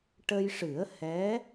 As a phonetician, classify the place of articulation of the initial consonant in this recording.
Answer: retroflex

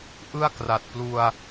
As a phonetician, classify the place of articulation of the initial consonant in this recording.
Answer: glottal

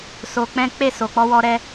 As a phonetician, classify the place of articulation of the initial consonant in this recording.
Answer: alveolar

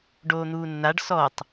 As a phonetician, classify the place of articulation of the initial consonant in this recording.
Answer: retroflex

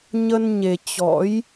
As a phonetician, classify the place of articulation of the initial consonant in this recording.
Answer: palatal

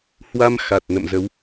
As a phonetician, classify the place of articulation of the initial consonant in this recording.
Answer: glottal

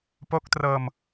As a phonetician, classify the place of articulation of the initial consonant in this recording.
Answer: labial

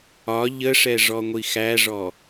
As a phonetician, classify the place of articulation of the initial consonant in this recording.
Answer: palatal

